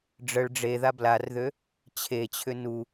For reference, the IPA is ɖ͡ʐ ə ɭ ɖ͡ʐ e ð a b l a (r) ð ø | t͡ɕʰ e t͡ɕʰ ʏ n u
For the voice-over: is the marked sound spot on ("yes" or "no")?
yes